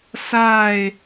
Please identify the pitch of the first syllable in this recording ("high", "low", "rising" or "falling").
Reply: falling